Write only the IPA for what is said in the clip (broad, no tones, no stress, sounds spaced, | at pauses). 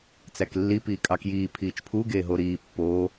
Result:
t͡s æ k lː i p iː kʼ ɑ k j iː pʰ iː t͡ʃ pʰ u ɡ eː ɦ o ɾ iː pː oː